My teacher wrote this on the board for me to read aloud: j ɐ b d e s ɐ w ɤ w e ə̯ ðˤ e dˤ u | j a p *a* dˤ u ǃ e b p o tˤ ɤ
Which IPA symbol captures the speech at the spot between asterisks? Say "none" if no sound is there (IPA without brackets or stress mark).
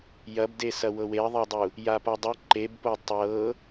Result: a